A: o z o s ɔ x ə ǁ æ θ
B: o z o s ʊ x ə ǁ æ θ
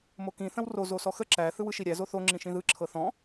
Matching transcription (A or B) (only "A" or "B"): A